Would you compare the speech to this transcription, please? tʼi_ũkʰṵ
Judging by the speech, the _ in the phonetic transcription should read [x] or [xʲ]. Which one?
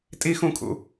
x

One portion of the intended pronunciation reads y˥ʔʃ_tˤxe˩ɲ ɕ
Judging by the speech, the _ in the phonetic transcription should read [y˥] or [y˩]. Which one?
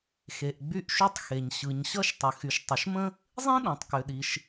y˥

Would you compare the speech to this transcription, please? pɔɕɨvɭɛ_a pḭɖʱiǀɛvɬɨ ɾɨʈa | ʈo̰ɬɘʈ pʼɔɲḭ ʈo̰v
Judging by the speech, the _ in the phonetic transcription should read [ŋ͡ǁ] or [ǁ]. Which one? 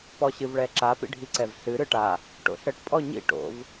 ǁ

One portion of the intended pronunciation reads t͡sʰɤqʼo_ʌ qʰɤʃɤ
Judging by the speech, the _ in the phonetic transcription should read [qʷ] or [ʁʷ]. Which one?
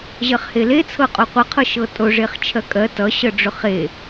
qʷ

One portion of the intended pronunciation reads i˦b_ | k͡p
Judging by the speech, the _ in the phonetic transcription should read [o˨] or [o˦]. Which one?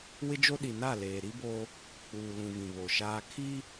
o˦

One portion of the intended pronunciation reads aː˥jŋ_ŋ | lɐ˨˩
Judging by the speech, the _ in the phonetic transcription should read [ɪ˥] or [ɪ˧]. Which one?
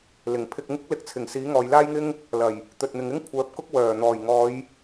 ɪ˥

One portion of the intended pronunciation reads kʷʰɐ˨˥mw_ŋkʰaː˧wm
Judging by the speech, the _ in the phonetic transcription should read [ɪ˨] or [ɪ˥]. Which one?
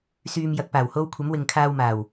ɪ˨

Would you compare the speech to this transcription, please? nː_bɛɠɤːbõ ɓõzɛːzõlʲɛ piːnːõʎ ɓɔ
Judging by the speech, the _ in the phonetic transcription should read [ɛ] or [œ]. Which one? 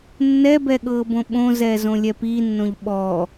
ɛ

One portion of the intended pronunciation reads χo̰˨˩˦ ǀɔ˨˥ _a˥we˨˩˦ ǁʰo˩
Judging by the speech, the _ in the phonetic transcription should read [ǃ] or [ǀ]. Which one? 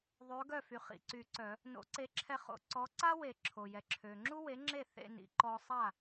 ǀ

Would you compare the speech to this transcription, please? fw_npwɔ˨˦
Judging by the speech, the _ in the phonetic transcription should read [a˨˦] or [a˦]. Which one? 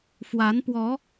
a˨˦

